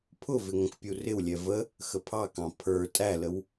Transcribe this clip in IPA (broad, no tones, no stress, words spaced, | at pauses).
pʰʊvɪ ŋə̃kpʲurɪwlʲɛ və | xəpʰɑkɑ̃ pʰə˞ tʼæləw